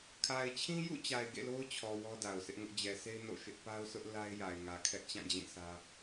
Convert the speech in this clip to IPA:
kʰa˨ɪ̯t͡ɕʰĩ˦jṵ˦˨t͡ɕa˨ɪ̯ ɡḛ˦˨lo˦ʊ̯t͡ɕʰɔ˨ wɔ˦da˨ʊ̯sʰɪ˦ʔŋʊ˦ʔ d͡ʑɛ˨sʰe˦ɪ̯ no̰˦˨ʃɪ˦ʔ pa˦ʊ̯sʊ˦ʔ la˦ɪ̯ja˨ɪ̯ŋä˨ kʰɛ˦ʔt͡ɕã˦˨d͡ʑĩ˦˨sä˦

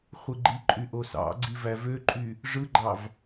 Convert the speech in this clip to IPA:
χʷɯɡ͡ǃiǃʼy ʔosɑ̰ɡ͡ǀi vævøǃʼy | ʐɯɡ͡ǃɑv

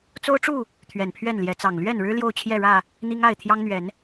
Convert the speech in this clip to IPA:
t͡so˦ʊ̯ʈ͡ʂu˥˨ | t̪ʰɥɛ˨˩npʰɥɛ˥˨nljɛ˨˦t͡sɑ˨˩ŋ lɥɛ˥˨nɻɻ̩˦ ljo˥˨ʊ̯t͡ɕʰjɛ˥˨ɻä˥˨ | n̪i˦ŋa˥˨ɪ̯ t̪ʰjɑ˦ŋn̪ɥɛ˨˦n

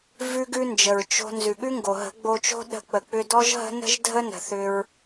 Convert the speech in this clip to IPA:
vʉ˦ɡʉ˦nd͡ʒə˨ɹ t͡ʃo̤˧ nzʉ˨ɠʉ˦ŋɡo˨ɦə̤˨˦ ɡ͡bo˧t͡ʃo̤˦ ɗə̤˧ k͡pə˨k͡pʏ˧dɔ˦ʒɦə̤˦ nə̤˦ʒ dʱə˦nə̤˨θʏ˧ɹ

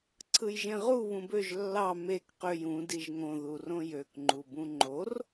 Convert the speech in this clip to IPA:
ǀʰɯjʒẽʁu βũbøʒ lːɑ mek qøj ũ diʒŋõ ðurõjøkŋ͡ǃu bũŋ͡ǃor

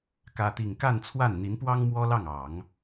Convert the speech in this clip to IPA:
kä˥t̪i˥˧ŋ ka˥˧nt͡sʰwa˥˩n n̪i˧˥npwɑ˥ŋ mwɔ˥lɑ˥˩ŋ ɑ˨˩˦ŋ

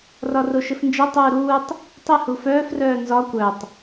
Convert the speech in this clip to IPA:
rɒroʃɘfnd͡ʒɘ tˤuːɾuːtˤ | tˤɘ hufœːf rœːnzɒ kʷœtˤ

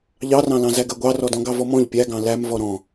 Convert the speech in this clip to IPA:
ʎɑrɑ̃lɑ̃zæ ɡɜɡʷɑrɔdɔ̃ ɡɑvɔmɔ̃ʎ pʲæɡɑ̃ læmvɔ ɾɔ̃

